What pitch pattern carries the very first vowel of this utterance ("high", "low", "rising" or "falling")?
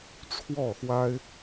falling